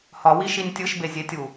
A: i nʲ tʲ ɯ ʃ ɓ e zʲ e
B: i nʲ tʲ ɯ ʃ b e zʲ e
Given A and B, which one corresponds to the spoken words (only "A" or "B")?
B